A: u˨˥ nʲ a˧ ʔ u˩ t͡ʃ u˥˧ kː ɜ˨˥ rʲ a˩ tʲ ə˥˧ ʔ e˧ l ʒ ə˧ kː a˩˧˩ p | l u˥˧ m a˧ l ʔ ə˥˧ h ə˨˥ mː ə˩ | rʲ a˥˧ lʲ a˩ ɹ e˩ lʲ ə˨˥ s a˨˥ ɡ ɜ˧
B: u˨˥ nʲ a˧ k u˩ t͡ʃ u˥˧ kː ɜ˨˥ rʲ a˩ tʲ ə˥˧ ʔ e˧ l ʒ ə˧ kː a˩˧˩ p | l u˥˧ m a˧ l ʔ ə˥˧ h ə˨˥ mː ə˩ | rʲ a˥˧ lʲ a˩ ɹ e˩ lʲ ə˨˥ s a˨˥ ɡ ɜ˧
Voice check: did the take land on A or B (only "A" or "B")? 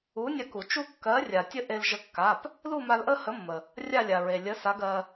B